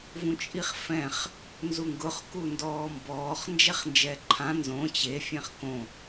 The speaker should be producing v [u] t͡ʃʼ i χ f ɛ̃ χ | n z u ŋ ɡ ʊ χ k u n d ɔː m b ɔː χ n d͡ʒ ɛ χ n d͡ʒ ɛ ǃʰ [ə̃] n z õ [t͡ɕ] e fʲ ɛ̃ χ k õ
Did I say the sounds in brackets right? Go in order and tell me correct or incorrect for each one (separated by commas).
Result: incorrect, incorrect, correct